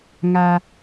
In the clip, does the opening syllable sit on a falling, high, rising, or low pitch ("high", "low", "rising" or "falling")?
high